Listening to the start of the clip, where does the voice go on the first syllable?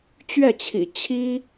falling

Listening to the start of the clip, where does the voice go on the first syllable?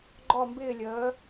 falling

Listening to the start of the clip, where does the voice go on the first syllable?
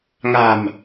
low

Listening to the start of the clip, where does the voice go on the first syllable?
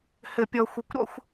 low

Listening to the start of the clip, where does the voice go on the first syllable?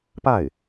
falling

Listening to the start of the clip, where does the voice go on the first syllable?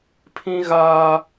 high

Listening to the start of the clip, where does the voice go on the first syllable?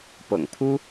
low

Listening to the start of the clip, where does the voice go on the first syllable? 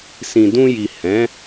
low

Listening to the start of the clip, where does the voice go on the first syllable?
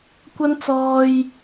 high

